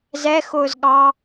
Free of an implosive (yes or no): no